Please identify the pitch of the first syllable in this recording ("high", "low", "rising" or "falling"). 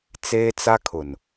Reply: high